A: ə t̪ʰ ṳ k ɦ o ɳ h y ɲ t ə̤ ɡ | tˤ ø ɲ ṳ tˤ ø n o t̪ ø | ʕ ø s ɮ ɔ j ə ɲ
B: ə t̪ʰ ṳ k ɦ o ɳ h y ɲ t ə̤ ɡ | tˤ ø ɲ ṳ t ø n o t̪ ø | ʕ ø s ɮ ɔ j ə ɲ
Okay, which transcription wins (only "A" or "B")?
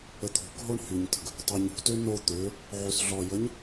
B